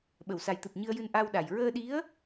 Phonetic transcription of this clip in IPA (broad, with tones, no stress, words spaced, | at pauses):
ɓə˨˩˨wsa˨˩jt̪ɨ˨˩p̚ ɲɨ˧ə̯jɨ˧n ʔa˧wɗa˨˩j ɹəː˧ɗi˧˥ə̯